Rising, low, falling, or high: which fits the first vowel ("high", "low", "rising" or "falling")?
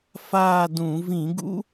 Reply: falling